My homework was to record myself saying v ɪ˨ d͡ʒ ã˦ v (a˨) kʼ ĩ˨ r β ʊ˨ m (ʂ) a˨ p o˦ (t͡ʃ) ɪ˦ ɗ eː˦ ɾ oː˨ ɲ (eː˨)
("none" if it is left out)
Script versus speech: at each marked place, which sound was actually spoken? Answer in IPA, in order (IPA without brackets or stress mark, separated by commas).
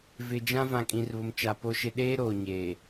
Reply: ã˨, t͡ʃ, ʃ, eː˨